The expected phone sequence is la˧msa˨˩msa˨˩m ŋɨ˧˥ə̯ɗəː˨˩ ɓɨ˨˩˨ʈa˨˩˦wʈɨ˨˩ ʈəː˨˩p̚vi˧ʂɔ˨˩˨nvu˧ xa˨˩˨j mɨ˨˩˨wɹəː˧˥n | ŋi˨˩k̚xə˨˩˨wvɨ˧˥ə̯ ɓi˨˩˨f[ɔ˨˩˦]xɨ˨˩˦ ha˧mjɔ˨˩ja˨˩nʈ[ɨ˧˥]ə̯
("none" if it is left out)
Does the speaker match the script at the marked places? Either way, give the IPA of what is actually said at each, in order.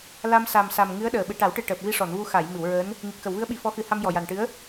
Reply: ɔ˧˥, ɨ˧˥

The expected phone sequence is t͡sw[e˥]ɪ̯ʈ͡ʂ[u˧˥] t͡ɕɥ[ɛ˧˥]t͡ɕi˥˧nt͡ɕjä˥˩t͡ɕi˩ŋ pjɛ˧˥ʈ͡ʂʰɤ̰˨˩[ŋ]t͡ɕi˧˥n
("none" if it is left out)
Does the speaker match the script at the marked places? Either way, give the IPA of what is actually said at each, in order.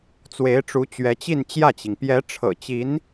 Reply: e˧˥, u˧˥, ɛ˧˥, none

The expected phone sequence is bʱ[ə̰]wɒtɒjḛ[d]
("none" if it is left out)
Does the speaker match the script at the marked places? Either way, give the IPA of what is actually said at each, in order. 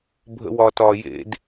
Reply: ə̰, d

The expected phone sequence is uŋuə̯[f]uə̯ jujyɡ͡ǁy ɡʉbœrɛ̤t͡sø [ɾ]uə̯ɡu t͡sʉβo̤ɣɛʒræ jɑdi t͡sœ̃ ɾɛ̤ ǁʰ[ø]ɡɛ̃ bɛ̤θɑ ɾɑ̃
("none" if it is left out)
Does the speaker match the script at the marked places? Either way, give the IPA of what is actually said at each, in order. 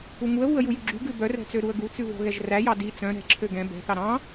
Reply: β, ɾ, ø

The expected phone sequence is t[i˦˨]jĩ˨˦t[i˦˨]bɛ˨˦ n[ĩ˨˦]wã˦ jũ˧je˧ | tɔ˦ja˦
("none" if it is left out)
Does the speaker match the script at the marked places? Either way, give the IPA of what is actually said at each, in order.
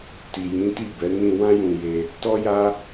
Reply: i˨, i˦˨, ĩ˧

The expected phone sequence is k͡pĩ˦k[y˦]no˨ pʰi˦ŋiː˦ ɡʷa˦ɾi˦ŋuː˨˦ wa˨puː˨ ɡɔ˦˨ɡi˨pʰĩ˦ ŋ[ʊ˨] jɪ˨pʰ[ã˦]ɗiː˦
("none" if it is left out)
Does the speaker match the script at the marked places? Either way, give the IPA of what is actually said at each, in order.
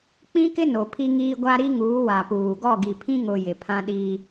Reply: ɪ˦, ʊ˨, ã˦

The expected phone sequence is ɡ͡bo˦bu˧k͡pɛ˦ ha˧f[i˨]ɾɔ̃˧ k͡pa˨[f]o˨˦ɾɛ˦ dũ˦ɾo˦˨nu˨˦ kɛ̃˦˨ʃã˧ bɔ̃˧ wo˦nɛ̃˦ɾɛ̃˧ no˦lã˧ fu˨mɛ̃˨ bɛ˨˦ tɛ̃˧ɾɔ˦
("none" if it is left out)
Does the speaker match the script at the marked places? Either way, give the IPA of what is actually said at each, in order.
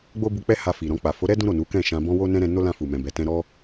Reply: i˨, f

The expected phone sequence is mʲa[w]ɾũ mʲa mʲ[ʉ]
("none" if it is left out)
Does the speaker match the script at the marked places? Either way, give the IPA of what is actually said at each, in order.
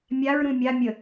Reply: ɹ, ə

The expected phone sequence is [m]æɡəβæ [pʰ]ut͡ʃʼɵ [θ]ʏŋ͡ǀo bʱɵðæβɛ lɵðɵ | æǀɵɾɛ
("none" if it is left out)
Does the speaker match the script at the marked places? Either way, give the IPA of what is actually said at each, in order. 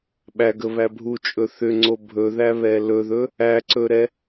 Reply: ɓ, bʱ, θ

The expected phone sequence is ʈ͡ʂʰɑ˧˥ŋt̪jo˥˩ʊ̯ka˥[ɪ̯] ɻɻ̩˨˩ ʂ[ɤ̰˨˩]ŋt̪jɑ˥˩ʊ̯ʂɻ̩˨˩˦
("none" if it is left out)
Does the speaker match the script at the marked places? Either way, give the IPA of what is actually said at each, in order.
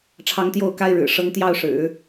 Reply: ɪ̯, ɤ˧˥

